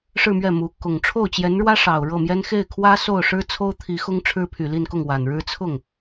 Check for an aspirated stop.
present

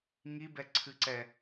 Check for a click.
present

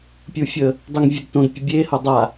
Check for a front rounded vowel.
absent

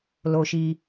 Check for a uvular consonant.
absent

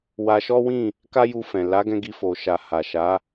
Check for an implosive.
absent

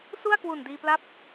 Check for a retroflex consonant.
absent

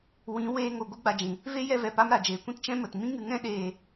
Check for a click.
absent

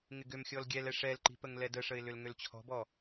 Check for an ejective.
absent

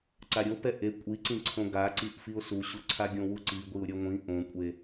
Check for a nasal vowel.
present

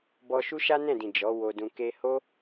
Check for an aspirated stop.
absent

